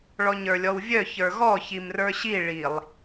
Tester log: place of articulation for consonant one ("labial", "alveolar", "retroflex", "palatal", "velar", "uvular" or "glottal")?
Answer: retroflex